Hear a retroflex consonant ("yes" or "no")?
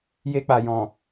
no